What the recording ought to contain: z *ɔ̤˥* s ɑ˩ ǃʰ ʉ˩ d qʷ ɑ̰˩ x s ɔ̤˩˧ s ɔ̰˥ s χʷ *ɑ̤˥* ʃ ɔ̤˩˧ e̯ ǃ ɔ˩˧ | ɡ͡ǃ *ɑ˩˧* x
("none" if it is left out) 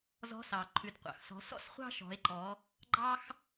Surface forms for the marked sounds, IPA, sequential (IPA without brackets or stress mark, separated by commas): ɔ̤˧˥, ɑ̤˥, ɑ˥